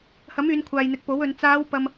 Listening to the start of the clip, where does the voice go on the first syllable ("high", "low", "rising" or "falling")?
rising